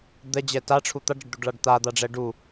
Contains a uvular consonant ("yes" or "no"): no